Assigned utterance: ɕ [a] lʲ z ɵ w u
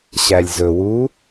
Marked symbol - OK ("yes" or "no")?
no